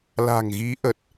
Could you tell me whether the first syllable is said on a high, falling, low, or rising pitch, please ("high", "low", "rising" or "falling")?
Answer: low